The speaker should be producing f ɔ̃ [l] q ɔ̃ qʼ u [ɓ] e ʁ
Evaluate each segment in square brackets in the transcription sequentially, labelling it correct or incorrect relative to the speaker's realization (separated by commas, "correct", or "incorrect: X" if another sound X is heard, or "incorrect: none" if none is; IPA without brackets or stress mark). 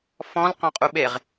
correct, correct